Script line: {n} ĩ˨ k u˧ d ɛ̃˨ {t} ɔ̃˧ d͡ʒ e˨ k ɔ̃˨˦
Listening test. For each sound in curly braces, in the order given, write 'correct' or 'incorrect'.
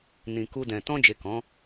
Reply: correct, correct

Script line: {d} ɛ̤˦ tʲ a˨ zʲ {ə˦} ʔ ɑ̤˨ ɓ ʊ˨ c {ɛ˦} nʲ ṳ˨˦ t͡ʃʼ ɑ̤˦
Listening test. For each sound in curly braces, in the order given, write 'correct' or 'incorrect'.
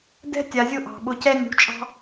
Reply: correct, incorrect, correct

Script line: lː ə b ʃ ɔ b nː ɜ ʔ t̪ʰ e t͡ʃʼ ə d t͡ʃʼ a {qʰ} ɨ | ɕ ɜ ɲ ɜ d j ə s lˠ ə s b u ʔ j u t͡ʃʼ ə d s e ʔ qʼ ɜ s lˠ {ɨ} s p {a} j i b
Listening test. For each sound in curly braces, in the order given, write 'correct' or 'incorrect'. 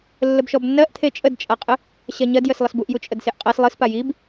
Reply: incorrect, correct, correct

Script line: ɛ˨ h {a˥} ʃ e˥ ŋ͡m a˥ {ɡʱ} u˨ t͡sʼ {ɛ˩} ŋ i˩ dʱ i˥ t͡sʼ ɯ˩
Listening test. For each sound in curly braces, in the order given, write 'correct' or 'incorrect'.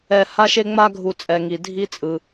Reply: correct, correct, correct

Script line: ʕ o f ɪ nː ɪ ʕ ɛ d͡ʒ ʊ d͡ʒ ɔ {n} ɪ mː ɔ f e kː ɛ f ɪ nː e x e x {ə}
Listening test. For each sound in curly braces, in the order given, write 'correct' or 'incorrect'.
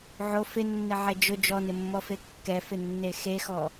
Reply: correct, incorrect

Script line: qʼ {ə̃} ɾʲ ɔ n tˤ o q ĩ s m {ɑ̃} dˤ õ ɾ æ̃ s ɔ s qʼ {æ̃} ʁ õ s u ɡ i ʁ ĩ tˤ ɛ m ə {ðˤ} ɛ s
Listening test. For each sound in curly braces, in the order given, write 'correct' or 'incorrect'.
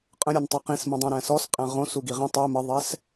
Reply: correct, incorrect, correct, correct

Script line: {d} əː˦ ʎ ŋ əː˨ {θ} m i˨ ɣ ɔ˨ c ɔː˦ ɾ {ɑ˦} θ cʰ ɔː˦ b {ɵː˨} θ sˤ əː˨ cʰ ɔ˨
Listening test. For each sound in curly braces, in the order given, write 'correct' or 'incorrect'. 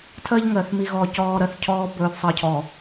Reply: incorrect, correct, incorrect, correct

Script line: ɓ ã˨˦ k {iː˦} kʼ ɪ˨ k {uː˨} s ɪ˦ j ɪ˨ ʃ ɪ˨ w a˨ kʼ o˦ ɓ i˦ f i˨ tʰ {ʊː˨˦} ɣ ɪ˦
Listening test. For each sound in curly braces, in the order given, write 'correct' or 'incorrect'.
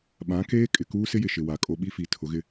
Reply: incorrect, incorrect, incorrect

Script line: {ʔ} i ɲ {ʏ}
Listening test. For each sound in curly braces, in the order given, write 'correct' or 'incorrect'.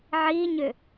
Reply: incorrect, correct

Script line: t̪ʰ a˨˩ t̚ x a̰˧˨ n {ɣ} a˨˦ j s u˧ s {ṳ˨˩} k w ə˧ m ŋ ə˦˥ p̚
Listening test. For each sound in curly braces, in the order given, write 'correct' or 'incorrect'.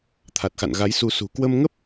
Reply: correct, correct

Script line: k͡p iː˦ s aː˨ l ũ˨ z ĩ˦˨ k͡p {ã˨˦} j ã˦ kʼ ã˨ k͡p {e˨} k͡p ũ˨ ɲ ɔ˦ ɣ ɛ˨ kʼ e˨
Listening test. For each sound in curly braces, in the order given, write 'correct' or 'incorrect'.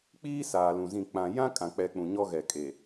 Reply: incorrect, incorrect

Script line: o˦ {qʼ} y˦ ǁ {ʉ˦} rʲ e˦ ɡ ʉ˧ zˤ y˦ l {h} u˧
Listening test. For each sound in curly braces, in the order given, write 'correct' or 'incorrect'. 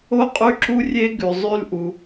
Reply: correct, incorrect, incorrect

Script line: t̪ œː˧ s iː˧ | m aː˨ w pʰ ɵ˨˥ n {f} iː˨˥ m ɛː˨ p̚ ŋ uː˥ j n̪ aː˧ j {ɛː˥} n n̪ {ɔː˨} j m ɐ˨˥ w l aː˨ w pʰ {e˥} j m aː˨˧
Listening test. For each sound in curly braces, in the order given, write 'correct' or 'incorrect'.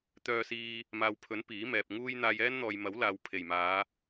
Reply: incorrect, correct, correct, incorrect

